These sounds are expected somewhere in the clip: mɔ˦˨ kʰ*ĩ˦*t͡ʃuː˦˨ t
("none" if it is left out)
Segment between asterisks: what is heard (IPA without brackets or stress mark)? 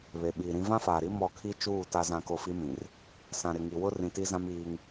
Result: i˦